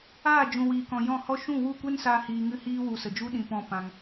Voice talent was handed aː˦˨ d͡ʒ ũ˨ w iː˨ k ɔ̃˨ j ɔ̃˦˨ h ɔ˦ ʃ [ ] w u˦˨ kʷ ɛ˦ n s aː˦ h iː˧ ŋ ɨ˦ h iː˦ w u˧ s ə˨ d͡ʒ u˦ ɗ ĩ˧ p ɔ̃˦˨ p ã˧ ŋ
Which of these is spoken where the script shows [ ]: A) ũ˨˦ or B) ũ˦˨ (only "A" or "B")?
B